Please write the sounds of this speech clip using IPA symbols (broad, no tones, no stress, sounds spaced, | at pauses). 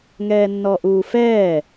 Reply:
ŋ ɛː nː ɔ ʔ uː f ɛː